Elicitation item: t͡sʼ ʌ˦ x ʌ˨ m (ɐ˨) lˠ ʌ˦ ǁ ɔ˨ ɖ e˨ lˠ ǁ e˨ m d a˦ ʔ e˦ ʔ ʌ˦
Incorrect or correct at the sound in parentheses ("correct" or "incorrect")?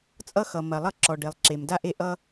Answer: correct